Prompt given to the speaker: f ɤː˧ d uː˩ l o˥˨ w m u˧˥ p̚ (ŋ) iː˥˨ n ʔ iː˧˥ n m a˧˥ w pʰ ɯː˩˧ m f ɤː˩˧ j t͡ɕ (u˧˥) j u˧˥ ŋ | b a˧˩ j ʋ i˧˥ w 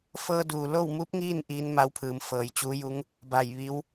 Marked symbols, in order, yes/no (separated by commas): yes, no